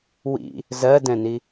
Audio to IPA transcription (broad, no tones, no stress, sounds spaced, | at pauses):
w ḭ | z ɜ d ɛ̃ n i